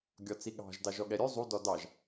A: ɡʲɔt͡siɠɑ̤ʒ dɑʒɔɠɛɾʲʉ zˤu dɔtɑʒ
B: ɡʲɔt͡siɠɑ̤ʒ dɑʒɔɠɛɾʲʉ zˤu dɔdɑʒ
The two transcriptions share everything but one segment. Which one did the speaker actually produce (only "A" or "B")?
B